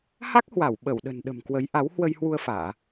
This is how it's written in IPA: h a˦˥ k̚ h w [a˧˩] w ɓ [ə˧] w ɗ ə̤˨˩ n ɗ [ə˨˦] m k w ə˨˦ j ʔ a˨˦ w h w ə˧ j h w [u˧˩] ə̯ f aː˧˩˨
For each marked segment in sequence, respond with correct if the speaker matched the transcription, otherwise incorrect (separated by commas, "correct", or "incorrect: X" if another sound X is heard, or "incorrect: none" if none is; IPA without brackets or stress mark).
correct, incorrect: ə˧˩, incorrect: ə̤˨˩, incorrect: u˧